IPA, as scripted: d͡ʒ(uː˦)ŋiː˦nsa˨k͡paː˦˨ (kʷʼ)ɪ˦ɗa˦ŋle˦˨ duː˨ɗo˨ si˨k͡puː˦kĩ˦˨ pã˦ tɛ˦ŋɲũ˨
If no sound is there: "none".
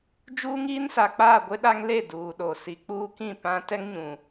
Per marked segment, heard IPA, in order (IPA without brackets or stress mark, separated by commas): uː˦, ɡʷ